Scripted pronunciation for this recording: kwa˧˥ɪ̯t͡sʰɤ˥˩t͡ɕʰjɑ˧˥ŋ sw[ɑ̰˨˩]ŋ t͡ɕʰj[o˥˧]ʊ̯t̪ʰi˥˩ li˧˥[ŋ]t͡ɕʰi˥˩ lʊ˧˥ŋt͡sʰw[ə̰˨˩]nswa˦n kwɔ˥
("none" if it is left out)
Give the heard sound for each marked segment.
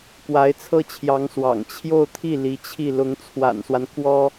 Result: ɑ̰˨˩, o˥˧, none, a̰˨˩

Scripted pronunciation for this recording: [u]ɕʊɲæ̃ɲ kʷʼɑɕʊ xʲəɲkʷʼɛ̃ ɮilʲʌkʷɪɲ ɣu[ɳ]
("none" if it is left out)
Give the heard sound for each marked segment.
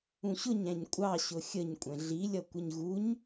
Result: ũ, ɲ

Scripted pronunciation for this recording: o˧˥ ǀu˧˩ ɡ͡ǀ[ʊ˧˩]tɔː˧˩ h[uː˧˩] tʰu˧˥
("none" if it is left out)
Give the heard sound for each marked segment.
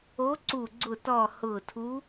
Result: ʊ˧˩, ʊː˧˩

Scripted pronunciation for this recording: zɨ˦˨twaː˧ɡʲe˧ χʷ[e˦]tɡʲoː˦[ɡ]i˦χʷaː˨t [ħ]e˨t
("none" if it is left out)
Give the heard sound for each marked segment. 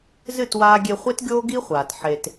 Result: e˦, ɡ, ħ

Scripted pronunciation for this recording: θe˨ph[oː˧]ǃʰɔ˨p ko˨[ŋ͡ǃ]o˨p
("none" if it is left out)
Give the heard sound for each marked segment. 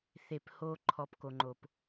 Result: oː˧, ŋ͡ǃ

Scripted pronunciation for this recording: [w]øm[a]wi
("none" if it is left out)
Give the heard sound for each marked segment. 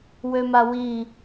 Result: w, a

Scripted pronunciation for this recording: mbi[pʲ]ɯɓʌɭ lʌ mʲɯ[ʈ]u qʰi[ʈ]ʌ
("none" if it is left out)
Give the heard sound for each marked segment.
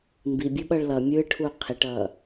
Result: bʲ, ʈʰ, ʈ

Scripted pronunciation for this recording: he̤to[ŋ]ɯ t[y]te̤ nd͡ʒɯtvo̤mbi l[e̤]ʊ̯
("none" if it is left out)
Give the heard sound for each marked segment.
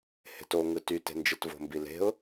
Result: ŋ, y, e̤

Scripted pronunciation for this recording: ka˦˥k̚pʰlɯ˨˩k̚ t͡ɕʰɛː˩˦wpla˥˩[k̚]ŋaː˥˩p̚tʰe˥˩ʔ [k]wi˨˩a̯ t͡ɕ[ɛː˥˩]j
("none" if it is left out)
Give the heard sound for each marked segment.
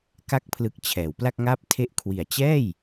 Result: k̚, kʰ, ɛː˥˩

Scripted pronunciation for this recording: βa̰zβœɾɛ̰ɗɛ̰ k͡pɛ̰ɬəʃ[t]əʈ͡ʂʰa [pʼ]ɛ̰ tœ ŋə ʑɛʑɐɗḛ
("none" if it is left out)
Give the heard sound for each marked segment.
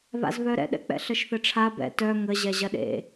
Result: θ, b

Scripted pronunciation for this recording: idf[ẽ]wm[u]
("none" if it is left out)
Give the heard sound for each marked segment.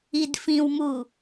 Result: ĩ, u

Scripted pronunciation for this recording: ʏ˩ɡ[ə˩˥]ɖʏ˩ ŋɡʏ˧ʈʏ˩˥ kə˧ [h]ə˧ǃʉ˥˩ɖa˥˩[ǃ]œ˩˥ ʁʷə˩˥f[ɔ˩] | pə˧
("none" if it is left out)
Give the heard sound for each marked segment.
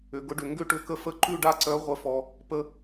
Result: ʊ˩˥, f, ǀ, ɔ˩

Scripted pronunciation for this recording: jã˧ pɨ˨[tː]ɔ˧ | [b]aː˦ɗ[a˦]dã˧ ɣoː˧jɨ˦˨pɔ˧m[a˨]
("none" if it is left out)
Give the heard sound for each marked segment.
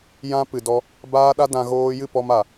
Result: d, b, a˦, a˨

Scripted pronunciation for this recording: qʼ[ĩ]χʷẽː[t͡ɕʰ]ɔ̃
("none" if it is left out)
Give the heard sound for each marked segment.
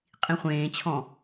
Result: ĩ, t͡ɕʰ

